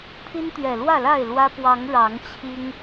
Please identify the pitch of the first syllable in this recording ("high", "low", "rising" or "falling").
high